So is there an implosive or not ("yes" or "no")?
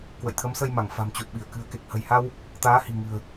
yes